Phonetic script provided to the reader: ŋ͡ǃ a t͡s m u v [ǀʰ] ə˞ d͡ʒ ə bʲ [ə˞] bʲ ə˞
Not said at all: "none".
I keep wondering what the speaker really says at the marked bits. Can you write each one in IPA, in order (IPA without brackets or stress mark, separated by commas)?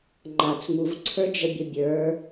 ǀʰ, ɐ